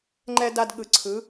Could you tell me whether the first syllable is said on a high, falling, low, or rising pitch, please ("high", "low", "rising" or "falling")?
high